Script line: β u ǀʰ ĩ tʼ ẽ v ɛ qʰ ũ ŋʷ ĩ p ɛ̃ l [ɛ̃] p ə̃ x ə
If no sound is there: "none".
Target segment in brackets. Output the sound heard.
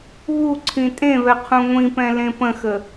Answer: ẽ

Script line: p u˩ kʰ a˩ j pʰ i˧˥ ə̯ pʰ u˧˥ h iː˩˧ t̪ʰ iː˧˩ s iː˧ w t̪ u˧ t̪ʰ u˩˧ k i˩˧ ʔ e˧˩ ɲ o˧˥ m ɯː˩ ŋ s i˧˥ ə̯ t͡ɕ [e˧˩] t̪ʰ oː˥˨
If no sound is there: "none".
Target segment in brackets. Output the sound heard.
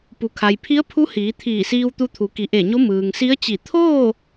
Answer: i˧˩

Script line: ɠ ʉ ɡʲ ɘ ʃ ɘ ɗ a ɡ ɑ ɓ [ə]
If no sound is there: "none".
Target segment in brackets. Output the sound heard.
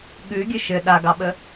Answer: ə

